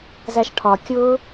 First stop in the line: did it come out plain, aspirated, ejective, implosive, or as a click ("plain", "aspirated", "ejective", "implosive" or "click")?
aspirated